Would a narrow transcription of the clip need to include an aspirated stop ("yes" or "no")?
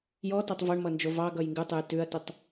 no